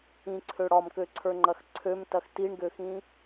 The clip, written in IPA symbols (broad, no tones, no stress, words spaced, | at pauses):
ĩǀʰø ɽɒmkøǀʰə˞ŋ͡ǃɐx ǀʰømtɐx tiɳɡøxĩ